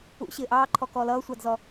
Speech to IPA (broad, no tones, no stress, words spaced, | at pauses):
ṵ ɕɪːʔɑːǃʰɔ kɔːlʌːsʷɑdzɔ